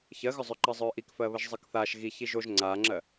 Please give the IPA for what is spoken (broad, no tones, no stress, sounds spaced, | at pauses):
ç ɜ ɣ ʏ zˤ ʏ ǃ ɜ zˤ œː ʔ i k f ɜ β ə ʒ zˤ ɜ k θ aː ʃ ɣ i ç i ʒ o ʒ ŋ͡ǀ aː ŋ͡ǁ ɜ